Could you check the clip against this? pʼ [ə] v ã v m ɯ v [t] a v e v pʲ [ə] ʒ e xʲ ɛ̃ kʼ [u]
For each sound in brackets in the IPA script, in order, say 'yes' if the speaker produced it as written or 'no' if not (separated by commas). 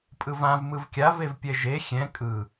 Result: no, no, no, no